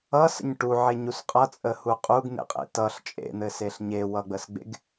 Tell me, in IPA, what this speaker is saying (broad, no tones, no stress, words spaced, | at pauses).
ʌsə̰ɲ ʈuʕeɲus qʼʌt͡sʼəhu qʼuɡn̪ḛqʼḛ tʌɬ t͡ʃʼḛn̪ɘseɬ ɲewʌɡ͡bəsɡ͡bḛɡ